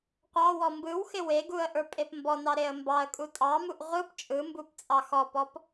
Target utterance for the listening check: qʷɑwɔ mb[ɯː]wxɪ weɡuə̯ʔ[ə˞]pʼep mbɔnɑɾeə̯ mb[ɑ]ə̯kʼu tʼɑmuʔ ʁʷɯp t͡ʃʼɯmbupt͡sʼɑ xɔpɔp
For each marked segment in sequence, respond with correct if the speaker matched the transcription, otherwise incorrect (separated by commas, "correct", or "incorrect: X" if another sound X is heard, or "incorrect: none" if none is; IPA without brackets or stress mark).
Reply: incorrect: ɯ, correct, correct